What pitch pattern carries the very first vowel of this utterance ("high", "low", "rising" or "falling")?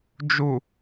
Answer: low